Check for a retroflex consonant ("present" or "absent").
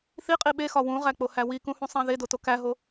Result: absent